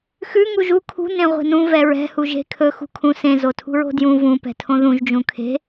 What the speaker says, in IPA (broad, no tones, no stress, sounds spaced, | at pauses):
x ʉ ŋ u ʒ u kʰ ṳ n ẽ ʁʷ e̤ n ũ v ɛ ɹ ɛ̤ h u ʒ e̤ kʰ ɵ x ṳ kʰ ũ s ẽ z o tʰ ṳ ɹ o̤ d j ũ v ũ p ɛ̤ tʰ õ ð ũ ʒ d͡ʒ ũ kʰ e̤